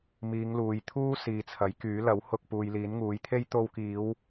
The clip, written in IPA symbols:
m iː˨˧ ŋ l uː˨ j t̪ʰ uː˥ s iː˨ t͡sʰ ɐ˨˥ j k yː˨˥ l ɐ˨˥ w h ʊ˧ k̚ p uː˨ j l iː˨˥ n ŋ uː˨˥ j t̪ʰ e˥ j t̪ o˧ w k iː˨˧ w

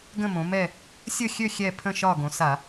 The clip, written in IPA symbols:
ɡ ə̃˦˨ m õ˩˧ m ɛ˦˨ | sʲ ə˦˨ xʲ ø˦˨ xʲ ɛ˦˨ pʰ ə̃˦˨ ʃ ɒ˦˨ ɡ õ˩˧ s a˧˩˧

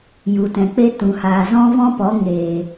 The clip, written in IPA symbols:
j u˨ t ɛ̃˨ k͡p e˦ t ũ˨ h aː˨ z ɔ̃˦ v ɔ̃˦ p ɔ˨˦ ŋ eː˨

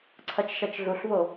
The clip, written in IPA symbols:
ǀʰ ɐ t͡ʃ ʃ ɐ t͡ʃ ɮ u ɬ v o

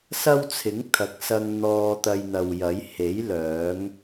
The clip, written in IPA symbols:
s ɐ˥ w t͡sʰ ɪ˨˥ ŋ t̪ʰ ɐ˨˥ k̚ s ɐ˧ ŋ n̪ ɔː˧ t̪ ɐ˧ j n̪ ɐ˨ w j ɐ˨˥ j h e˨˥ j l œː˨˥ ŋ

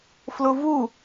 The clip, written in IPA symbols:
f l ʊ v u

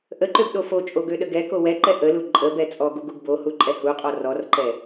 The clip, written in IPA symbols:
ʔ ə ǃ ø b ɗ o f o t͡ʃʼ o ɡ ø ɗ ə ɡ ɛ k o w ɛ ǃ ɛ ʔ ə l u ǃʼ ə b ɛ t͡sʼ ɔ ɡ u ɡ u ɡ b o h u ǃʼ ɛ h u qʼ ɔ r ɔ r ǃ ɛ

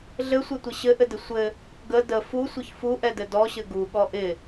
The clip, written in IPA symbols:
ɮ ɘ sʷ ɘ tʷ ɪ ɕ ɘ ʔ ɘ d ɪ sʷ ɘ | ɡ ə d ə f u sʷ ɘ ç f u ʔ ɛ d ɘ d ɔ ɕ ɘ ɡ u ɠ ɔ ʔ ɪ

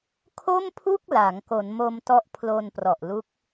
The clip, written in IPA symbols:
kʰ o˥˩ m pʰ u˥˩ k̚ l a˩˦ ŋ k o˩˦ n m o˧ m t ɔ˦˥ ʔ pʰ l o˧ n p r ɔ˨˩ ʔ l u˦˥ k̚

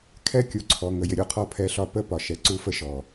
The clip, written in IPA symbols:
kʰ ɛ˦ kʲ u˨ ǀʰ ɔ˨ ŋ ə˨ j ɪ˨ ɾʲ u˦˨ qʰ ɔ˦ pʰ ɛ˦ ɬ ɒ˦ p ə˦ p ɒ˨ ʃ ɛ˨ ǀ u˦ f ə˦ ʃ ɔ˨

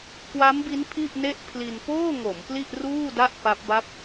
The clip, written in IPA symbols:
k w a˦˥ m b i˦˥ n pʰ i˥˩ ʔ n e˥˩ ʔ pʰ l i˧ n p oː˥˩ ŋ o˩˦ m p l i˥˩ ʔ r uː˥˩ d a˥˩ ʔ p a˦˥ p̚ b a˥˩ p̚

